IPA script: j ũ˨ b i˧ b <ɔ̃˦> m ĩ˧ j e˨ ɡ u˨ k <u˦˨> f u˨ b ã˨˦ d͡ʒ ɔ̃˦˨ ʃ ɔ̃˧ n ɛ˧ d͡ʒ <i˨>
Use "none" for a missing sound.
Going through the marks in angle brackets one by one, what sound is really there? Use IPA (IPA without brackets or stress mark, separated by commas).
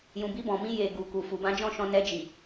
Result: ɔ̃˨, u˨, i˨